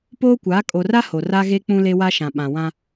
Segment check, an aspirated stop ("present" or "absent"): absent